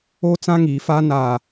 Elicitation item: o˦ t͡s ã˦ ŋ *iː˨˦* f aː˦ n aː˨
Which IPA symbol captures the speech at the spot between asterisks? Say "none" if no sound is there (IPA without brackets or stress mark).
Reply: iː˨˦